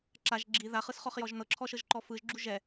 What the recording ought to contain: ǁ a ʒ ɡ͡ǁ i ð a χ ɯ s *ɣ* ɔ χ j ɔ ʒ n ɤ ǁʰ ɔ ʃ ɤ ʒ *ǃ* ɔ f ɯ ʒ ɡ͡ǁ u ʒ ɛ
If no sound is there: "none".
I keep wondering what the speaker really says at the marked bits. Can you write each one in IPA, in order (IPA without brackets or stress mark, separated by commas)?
χ, ǃ